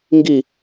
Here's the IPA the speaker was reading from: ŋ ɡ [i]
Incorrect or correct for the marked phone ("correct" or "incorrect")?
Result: correct